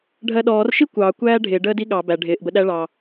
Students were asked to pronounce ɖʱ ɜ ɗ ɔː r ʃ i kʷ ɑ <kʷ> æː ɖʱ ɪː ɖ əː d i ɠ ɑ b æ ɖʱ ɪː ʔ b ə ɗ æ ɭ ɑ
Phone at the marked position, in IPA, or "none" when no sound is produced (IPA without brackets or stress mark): kʷ